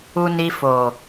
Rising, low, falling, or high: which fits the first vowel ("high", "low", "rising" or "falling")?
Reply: low